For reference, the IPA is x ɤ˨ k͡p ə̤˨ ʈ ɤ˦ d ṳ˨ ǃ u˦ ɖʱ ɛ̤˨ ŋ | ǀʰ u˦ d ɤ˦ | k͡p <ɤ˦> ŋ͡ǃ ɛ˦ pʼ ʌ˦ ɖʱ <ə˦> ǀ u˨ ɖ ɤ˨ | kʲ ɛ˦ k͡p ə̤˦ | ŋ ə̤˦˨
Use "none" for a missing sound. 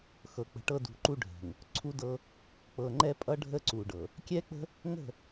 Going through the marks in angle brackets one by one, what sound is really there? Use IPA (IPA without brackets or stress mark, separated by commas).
ɤ˨, ə˦